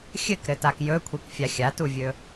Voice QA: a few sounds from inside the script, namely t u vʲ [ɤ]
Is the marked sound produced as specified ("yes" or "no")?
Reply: no